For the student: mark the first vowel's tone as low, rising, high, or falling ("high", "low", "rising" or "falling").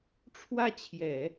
falling